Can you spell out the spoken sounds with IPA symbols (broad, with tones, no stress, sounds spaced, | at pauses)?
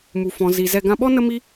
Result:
m u˨ f ɔ̃˨ z i˨ z ɛ˧ ɡ ã˧ ɓ ɔ˦ n ə˦ m i˦